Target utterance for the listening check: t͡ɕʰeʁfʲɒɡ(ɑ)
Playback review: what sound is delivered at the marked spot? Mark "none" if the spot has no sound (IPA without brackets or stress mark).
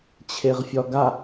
a